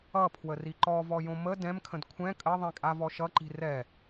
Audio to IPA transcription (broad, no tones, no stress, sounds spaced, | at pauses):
ʌ pʰ w ə r i ǃ ɔ v ɔ j õ m ə d ɛ̃ m kʰ ə̃ d kʷʰ ɛ̃ kʼ ə ðˤ ĩ kʼ a v ɔ ʃ ʌ ǃ i̤ r ɛ